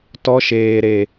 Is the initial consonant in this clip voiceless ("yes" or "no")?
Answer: yes